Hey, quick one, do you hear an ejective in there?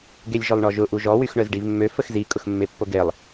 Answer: yes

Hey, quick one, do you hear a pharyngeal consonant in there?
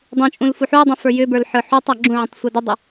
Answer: yes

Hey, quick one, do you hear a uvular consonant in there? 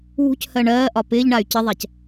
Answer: no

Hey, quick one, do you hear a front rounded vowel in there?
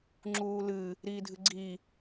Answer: no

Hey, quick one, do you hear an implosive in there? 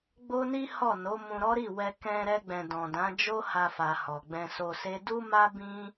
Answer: no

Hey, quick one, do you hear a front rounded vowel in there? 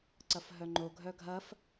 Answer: yes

